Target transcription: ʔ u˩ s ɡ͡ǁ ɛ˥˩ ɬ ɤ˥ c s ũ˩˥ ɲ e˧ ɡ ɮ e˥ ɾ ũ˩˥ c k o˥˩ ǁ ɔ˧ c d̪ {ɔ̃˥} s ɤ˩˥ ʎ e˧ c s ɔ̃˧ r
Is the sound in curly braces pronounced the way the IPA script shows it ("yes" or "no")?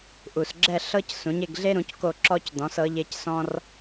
no